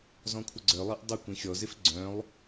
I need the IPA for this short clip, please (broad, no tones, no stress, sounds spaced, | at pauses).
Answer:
z ɔ̃ kʷʰ ə ɡ͡ǀ œ lˠ e ʔ dˤ ʊ kʷ ĩ xʲ ɔ z ɪ f ɡ͡ǀ œ̃ lˠ